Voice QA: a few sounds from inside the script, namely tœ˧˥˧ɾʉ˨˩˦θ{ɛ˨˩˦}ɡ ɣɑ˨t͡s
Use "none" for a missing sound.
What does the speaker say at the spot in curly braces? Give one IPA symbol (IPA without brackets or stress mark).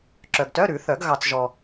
œ˨˩˦